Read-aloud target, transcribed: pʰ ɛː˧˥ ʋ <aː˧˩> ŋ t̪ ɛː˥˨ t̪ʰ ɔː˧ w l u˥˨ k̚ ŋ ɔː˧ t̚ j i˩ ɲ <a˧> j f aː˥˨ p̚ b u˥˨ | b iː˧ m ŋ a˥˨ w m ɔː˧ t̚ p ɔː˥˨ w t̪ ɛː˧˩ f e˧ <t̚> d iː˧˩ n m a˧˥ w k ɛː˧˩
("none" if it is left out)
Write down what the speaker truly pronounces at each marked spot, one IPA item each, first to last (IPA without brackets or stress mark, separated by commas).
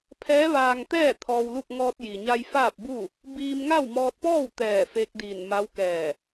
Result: aː˧, a˧, k̚